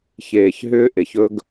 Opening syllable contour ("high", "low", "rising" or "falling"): low